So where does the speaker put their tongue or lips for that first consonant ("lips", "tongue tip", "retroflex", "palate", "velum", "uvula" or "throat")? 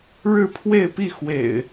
retroflex